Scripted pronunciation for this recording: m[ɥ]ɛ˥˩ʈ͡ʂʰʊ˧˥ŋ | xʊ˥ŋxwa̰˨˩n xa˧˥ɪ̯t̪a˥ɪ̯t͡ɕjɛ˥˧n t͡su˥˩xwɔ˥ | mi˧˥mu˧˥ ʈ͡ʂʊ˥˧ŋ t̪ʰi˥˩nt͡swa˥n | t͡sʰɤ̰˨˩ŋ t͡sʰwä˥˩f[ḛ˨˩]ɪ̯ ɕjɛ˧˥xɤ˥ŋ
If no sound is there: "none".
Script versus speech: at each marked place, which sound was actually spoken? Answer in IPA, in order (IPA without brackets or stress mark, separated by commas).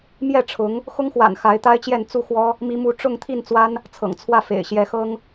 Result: j, ḛ˨˩